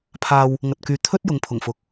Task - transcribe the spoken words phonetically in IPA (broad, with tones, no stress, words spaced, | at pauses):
pʰaː˧w | ŋɐ˨t̚kyː˨ t̪ʰɵ˥t̚ jʊ˨˧ŋpʰʊ˨˩ŋfʊ˨˥k̚